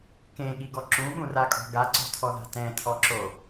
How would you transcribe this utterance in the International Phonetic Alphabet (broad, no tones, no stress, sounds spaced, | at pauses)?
k ẽ ɠ i ɡ ɔ ǁ ũ ɠ ũ r a kʼ ɔ̤ ɡ a ǀ o̤ tʰ ɔ ð a̤ t ɛ̃ tʰ ɔ ǁ o